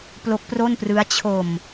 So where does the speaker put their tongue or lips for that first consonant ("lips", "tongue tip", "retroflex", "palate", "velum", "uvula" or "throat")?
lips